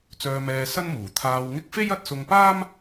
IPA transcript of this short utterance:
t͡s œː˧ m ɛː˧ s ɐ˥ n m uː˨˩ t̪ʰ aː˧ w ŋ ɪ˥ k̚ f e˥ j ɐ˧ t̚ s ʊ˧ ŋ p aː˥ m

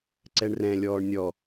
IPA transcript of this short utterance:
ǀ ɛ ɳ r ɛ̃ lʲ ɔː ɳ nʲ ɔ

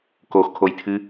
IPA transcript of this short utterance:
k o x kʰ o j tʰ ɨ

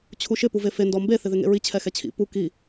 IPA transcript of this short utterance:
t͡ɕʰ u ʃ ɪ p u v e f e n d ɔ m b e θ ɪ ð ɪ ŋ ḛ ɹ i t͡ɕʰ ɛ x ɛ t͡ɕʰ ḭ p u k i

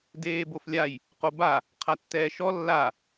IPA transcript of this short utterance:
d eː b o f lʲ a j | q o b a | qʰ a tː ɛː ʃ ɔ lː a

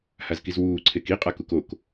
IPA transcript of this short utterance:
h a z k i z w uː ǀʰ e k i qʼ a k u k o k

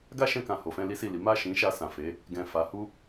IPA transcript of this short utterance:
ɡ a˦ ʃ ɛ̃˧ k ã˨ h o˨ f ɛ̃˧ l i˦ s i˦˨ l i˨˦ m a˦˨ ʃ ĩ˨˦ ʃ a˧ s ã˨ f e˨˦ | ɡ ɛ̃˨ f a˨˦ h u˦

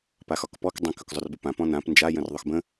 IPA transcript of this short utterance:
p a x ɒ k p ɔ k dˤ ə̃ k ɵ k zˤ ɵ r b ə p ã p ɔ̃ n ã p n d͡ʒ a j ə̃ r ðˤ ɵ x b ə̃

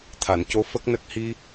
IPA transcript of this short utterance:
t̪ʰ a˨˩˨ n c o˧˥ f ə˦˥ k̚ n ə˦˥ k̚ h i˧

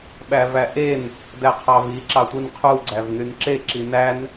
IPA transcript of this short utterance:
ɓ æ v æ ʔ e n | d æ qʰ ɑ v i ǁ ɑ tʷ i n qʰ u ɡ͡ǀ æ v n y n ǁ e ǁ i n æ n

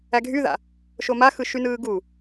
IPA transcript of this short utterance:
æ ɡʱ y ð a̰ | ʃ o m a x ɯ ʃ y n ɯː ɡ u

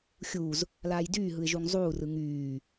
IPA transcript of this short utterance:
xʲ uː z | l aː j d yː ɦ ɯ ɪ̯ ʒ u ŋ zˤ uː r ɯ ŋ yː

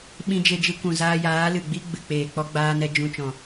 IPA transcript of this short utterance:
ɓ ĩ˧ d͡ʒ e˧ d͡ʒ ɨ˧ kʷ ũ˨ z aː˧ j aː˨˦ l ɨ˨ ɡ͡b i˦ ɡ͡b ɨ˨ k͡p eː˨ k͡p ɔ˦ ɡ͡b aː˦ n ɛ˦ d͡ʒ ũ˧ t͡ʃ ɔ̃˨

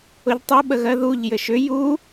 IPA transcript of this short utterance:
ʊ ʎ tˤ ʊ ɓ ə ɣ ɜ ð u ʎ j ɘ ʃ ʏ j u

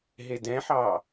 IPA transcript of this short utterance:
ɦ e d ɛ̃ ħ ɑ

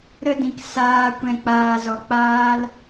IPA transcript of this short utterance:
ɾ ə˦ d ĩ˧ k s aː˧ kʷ ɛ̃˧ k͡p aː˧ z ɔ˧ k͡p aː˦ l

